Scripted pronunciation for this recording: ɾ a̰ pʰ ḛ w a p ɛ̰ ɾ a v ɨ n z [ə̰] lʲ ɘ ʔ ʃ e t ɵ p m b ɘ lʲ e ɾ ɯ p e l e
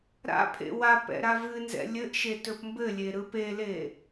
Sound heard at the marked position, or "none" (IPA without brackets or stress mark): ɛ̰